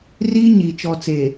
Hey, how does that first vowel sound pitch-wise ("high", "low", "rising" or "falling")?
high